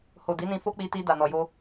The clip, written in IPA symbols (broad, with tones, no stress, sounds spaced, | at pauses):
h o˨ d i˨˦ n ĩ˧ f o˦ k͡p i˧ t i˧ d a˨ n ɔ˨ j o˧